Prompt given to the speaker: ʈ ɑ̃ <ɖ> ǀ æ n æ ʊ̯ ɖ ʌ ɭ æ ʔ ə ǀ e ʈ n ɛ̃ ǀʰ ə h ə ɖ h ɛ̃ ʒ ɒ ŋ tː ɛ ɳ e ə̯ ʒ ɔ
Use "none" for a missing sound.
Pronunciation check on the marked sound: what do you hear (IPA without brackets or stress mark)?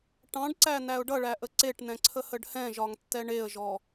ɖ